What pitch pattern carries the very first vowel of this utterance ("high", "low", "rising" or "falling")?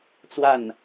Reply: falling